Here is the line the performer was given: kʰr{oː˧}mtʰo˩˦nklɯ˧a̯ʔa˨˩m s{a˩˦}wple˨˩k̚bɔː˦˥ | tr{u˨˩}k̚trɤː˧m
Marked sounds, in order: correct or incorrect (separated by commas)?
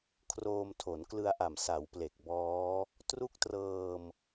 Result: correct, correct, incorrect